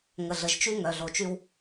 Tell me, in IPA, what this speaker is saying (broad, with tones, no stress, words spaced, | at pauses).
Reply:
ŋə˨ɮə˨ʒt͡ʃy˦ ŋœ˨ɮo˨t͡ʃy˦w